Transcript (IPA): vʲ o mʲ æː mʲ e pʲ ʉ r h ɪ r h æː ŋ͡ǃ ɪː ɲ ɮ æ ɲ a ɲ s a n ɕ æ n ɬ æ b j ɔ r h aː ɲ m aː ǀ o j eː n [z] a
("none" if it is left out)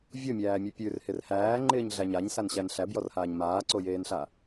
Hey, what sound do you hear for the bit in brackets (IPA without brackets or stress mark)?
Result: ɬ